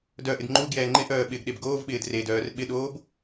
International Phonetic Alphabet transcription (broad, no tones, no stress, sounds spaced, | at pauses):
d œ ʔ ɪ d ŋ͡ǃ u ɡ j ɛː ŋ͡ǃ ɪ ʔ œː ɓ ɪː ɡ ɗ e b ɡ oː v ɓ ɪː d r e d œː r ɓ ɪ ɗ oː b